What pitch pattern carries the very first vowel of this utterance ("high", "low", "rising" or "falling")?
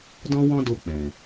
high